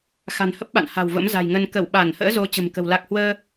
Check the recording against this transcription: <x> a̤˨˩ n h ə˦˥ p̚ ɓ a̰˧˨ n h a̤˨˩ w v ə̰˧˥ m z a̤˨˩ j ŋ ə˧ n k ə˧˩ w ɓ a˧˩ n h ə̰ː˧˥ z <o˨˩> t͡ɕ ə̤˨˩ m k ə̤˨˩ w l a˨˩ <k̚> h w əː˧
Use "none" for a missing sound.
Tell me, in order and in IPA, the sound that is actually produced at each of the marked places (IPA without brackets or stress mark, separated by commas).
x, o˨˦, k̚